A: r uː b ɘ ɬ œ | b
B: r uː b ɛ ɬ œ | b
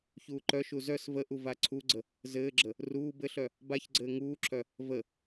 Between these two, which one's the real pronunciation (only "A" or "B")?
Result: A